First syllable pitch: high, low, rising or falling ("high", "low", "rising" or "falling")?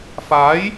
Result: rising